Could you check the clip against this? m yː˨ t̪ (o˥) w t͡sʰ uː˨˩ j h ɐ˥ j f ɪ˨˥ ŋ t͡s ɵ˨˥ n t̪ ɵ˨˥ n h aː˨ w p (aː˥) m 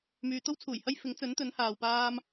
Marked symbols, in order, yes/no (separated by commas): yes, yes